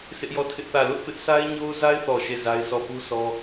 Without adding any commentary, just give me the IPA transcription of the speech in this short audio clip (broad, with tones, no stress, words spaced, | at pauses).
sʰɪ˦ʔjɔ˦˨tʰɪ˦ʔθä˦˨ lʊ˦ʔpɪ˦ʔ sa˦ɪ̯ɲo˦ʊ̯za˦ɪ̯θɔ˨ ʃe˦˨za˦ɪ̯sʰɔ˦˨ pu˦sɔ˦